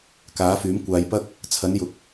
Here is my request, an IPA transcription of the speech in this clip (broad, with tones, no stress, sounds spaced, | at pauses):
k aː˨˥ f yː˨˥ m kʷ aː˨˧ j p ɐ˥ k̚ | t͡sʰ ɐ˨˥ n j ʊ˨˥ k̚